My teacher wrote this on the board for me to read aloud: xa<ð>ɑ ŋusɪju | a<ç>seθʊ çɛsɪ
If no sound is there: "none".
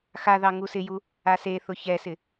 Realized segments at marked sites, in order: ð, none

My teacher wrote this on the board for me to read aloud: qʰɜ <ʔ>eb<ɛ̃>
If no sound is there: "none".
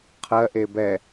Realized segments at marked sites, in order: ʔ, ɛ

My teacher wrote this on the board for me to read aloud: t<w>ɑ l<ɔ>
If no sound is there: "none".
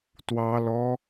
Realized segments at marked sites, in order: w, ɔ

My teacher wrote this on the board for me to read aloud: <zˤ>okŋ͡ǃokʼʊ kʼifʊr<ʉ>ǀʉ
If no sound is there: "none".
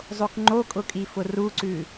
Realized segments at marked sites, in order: zˤ, u

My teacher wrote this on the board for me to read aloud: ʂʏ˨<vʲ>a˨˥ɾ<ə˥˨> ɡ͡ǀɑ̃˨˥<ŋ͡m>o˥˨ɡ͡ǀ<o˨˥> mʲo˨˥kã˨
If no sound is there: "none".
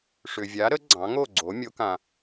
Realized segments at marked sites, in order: vʲ, ə˨˥, ŋ, o˨˥

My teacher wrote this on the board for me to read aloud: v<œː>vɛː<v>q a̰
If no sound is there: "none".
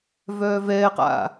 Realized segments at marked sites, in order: œː, none

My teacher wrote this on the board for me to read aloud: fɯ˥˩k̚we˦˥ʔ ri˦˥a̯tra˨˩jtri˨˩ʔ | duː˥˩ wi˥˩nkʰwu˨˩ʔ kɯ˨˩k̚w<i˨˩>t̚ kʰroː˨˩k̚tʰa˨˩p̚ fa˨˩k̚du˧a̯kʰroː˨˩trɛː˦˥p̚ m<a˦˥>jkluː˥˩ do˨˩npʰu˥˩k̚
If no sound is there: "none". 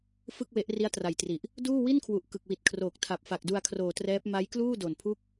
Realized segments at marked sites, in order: i˨˩, a˦˥

